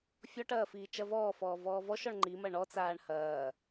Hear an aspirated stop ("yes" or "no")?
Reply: no